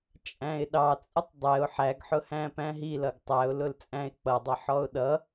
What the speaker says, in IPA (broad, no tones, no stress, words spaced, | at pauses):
t͡ʃʼæ̃ɪ̯ɗɑt͡sʼʊtˤ dˤɛʊ̯ ħæɡħʊhæ̃ pæ̃ɦilʌɡ tˤæʊ̯lʊl t͡sʼæ̃ɪ̯k͡pʌdˤʌ ħɔʊ̯ɗʌ